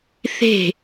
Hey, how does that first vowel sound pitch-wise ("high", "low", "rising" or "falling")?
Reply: falling